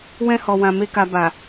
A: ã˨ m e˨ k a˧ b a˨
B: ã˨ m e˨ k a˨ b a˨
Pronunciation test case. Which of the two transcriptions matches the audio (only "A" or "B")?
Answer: B